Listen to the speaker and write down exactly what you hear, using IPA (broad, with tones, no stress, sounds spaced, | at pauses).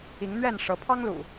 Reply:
i˨˦ ŋ n̪ ɥ ɛ˥˨ n ʂ ɤ˨˦ pʰ ɑ˦ ŋ l ṵ˨˩